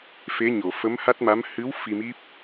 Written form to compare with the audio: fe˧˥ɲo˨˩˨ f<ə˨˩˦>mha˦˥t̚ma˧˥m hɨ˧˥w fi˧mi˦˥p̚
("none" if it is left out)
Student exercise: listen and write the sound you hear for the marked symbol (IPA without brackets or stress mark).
ə˧˥